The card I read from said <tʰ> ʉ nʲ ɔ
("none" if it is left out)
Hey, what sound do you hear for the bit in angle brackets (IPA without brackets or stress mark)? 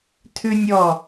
tʰ